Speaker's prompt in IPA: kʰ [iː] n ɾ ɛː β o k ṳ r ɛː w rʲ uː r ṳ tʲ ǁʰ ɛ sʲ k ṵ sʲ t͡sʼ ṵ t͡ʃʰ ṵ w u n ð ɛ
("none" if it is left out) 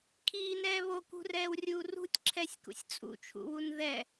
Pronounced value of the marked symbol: iː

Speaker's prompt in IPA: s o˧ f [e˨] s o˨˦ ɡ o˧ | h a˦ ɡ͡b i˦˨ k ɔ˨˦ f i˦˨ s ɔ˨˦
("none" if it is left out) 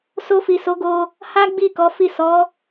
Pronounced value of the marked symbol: i˨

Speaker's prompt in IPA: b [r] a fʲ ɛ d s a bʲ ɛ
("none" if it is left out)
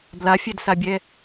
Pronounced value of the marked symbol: l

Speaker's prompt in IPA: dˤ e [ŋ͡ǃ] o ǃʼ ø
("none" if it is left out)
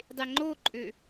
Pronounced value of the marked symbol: ŋ͡ǃ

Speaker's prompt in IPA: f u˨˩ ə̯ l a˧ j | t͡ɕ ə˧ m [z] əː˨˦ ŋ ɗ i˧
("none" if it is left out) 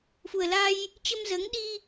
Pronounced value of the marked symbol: z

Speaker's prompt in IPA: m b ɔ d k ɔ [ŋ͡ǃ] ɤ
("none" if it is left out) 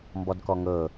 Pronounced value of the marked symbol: ŋ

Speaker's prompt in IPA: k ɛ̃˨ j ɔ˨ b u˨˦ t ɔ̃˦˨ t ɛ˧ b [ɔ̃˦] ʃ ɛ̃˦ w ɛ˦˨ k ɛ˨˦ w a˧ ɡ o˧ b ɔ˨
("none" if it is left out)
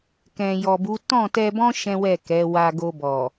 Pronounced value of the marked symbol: ɔ̃˦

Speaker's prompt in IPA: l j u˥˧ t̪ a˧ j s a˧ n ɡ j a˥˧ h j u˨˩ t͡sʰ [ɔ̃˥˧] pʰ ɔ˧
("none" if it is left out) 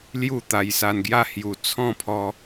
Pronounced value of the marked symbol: ɔ̃˥˧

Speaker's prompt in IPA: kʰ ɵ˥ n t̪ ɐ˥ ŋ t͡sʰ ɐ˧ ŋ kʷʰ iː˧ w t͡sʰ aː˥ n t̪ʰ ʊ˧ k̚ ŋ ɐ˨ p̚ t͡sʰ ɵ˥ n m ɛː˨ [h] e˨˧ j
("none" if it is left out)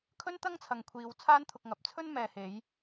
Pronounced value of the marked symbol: h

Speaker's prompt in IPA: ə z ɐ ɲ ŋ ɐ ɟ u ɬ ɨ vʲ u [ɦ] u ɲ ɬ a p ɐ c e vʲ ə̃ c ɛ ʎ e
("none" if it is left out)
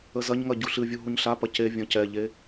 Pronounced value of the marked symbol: ɦ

